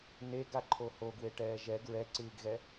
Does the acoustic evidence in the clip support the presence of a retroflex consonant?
yes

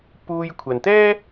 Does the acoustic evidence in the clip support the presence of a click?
no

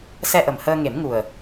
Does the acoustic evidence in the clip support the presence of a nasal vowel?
no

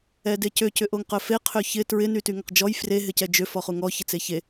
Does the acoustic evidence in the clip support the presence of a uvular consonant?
yes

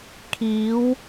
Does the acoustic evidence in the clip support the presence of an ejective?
no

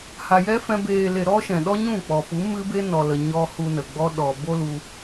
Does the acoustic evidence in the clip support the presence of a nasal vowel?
yes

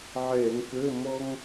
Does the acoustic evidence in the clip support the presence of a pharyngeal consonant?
yes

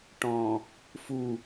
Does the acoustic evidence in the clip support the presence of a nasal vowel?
yes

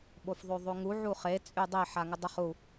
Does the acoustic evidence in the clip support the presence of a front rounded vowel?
yes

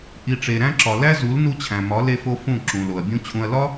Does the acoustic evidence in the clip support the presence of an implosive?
no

